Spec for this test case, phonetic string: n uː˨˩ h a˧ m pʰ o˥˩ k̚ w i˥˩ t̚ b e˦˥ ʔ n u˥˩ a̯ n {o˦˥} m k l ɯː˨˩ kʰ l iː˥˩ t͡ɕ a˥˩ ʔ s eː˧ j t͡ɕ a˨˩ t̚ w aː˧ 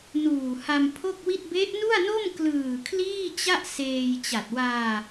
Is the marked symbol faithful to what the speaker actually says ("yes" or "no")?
no